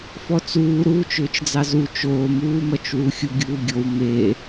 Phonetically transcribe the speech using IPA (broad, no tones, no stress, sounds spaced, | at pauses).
f ɔ t͡s uː ɾ uː t͡ʃ ʏː t͡ʃ d͡z ɑ z u t͡ʃ oː m uː m ʌ t͡ʃ w u xʲ u ɡʲ uː ɡʲ o w m e